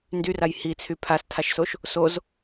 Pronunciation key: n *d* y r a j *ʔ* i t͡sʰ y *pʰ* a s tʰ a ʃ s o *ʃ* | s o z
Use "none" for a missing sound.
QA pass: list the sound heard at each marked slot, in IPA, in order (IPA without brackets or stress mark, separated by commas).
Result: d, h, pʰ, ʃ